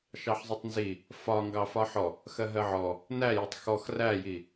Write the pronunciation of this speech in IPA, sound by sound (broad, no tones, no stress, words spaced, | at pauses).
ʃɑħzˤʊtˤnzi | fɒŋɡɑ fɒħɔ | xɜɦɜʕɔ | næjʌtˤ xɔx ræji